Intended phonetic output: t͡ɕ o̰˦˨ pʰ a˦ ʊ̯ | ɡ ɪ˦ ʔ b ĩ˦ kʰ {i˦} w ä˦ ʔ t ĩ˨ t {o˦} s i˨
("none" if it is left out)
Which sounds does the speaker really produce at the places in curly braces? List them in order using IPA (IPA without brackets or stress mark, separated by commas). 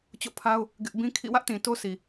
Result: ḭ˦˨, o˦